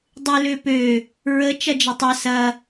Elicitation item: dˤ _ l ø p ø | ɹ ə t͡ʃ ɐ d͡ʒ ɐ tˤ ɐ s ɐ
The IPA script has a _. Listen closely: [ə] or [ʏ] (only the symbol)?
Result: ʏ